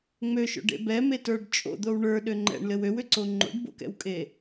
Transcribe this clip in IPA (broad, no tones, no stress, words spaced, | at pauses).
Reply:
ŋ͡møʃo̰ɖḛ bɛmetə˞ɖ t͡ʃʼo̰d̪ow ɳə˞ɗø ŋ͡ǃɛ̰ɳlɘw øwʏǀo ŋ͡ǃo̰ɖbo̰kɛ̰wkʼe